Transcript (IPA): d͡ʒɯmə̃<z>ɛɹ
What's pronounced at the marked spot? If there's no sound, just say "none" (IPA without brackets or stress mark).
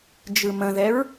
ð